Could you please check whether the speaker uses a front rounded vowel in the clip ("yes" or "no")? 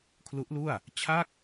no